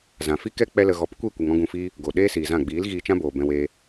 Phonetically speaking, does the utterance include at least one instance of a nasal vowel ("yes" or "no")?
yes